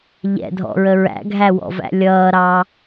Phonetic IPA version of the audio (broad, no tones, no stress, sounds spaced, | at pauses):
ʎ ɛ̰ dʱ ɔ̰ ɹ ə ɹ æ̰ ɡʱ æ w ɔ̰ v æ̰ lʲ ʌː ɾ ɑ